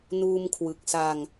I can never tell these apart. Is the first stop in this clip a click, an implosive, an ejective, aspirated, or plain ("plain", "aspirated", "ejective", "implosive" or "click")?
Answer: aspirated